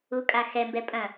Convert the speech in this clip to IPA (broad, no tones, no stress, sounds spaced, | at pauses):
u kʼ a x ɛ m b ɛ pʼ ɐ̃